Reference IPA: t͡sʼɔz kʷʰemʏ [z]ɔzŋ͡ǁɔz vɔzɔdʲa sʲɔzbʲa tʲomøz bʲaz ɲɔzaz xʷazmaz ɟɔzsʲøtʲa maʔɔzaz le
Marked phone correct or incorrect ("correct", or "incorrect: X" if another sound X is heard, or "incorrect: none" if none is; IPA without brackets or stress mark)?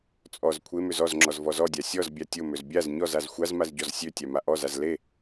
correct